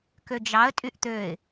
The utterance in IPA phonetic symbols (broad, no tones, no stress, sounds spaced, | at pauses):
k ø d͡ʒ ɑ ə̯ tʼ y ʔ t̪ ø ɪ̯